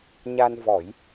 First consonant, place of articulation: palatal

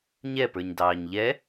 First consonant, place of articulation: palatal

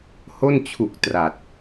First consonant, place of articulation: glottal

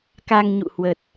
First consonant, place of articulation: velar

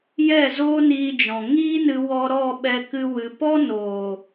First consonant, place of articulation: palatal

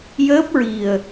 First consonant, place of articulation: palatal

